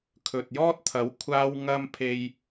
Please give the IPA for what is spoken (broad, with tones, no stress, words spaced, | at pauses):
kʰɵ˨t̚jɔː˥t̚t̪ʰɐ˨˥w kʷʰaː˧wŋɐ˧mpʰe˨j